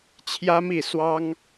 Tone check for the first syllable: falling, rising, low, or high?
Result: high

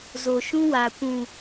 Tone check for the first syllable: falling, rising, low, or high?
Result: low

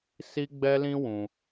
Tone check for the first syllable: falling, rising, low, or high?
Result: high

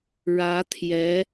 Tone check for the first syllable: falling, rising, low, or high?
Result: rising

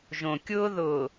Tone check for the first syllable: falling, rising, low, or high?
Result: low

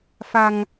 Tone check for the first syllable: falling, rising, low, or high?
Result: low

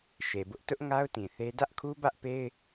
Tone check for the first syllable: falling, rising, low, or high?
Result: low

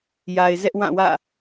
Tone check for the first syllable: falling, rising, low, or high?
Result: low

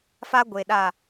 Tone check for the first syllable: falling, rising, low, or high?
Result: high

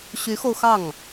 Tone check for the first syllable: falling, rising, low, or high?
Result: rising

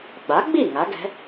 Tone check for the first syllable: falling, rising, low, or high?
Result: rising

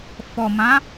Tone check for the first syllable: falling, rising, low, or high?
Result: low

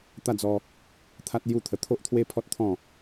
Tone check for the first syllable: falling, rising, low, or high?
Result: falling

